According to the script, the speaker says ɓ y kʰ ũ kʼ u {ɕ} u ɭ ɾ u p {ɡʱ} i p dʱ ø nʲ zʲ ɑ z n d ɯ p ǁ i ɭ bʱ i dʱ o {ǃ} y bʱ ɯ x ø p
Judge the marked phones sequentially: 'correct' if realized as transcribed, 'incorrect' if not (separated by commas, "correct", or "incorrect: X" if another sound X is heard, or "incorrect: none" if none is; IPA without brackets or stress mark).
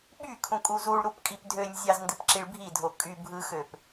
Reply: incorrect: z, incorrect: kʼ, incorrect: kʼ